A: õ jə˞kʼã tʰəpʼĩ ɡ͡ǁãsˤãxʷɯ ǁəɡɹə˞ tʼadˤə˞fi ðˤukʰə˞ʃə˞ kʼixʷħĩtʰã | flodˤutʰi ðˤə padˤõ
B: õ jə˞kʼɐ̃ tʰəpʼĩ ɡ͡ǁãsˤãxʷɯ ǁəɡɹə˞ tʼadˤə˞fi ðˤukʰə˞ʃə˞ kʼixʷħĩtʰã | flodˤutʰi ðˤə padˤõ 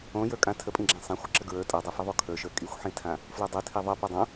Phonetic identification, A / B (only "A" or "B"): A